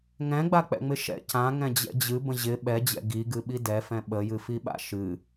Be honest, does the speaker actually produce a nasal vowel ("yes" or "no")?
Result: yes